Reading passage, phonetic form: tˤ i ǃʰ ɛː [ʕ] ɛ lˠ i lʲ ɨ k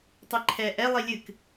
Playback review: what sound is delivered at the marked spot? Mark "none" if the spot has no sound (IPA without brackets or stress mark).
ʔ